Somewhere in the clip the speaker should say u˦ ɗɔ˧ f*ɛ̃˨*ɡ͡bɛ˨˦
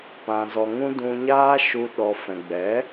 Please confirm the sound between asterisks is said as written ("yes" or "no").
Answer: yes